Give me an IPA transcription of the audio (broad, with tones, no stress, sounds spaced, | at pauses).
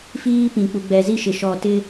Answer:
f iː˦ p ĩ˨ k͡p u˨ ɡ͡b ɛ˨ z i˦ ʃ ɪ˨ ʃ ɔ˨ t ɪ˦